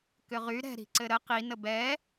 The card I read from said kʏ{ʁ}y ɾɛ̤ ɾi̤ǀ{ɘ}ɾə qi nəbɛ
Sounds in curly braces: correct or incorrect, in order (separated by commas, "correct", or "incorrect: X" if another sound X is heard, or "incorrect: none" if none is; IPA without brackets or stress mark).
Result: correct, correct